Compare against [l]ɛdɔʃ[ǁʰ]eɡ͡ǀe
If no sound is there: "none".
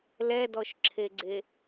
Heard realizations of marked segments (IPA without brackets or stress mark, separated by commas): l, ǁʰ